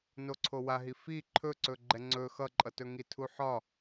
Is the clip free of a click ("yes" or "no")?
no